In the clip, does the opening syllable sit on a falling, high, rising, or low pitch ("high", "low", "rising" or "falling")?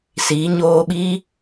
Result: rising